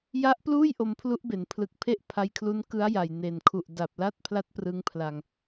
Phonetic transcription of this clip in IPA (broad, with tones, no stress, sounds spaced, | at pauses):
j a˦˥ ʔ p l uː˥˩ j ʔ o˧ m pʰ l u˦˥ ʔ b e˩˦ n pʰ l ɯ˨˩ k̚ pʰ e˥˩ ʔ pʰ a˧ j kʰ l u˦˥ n k ɯ˦˥ a̯ j a˨˩ j n e˨˩ n kʰ u˨˩ ʔ d a˨˩ p̚ l a˥˩ t̚ pʰ l a˦˥ t̚ p r ɯ˧ ŋ pʰ l a˧ ŋ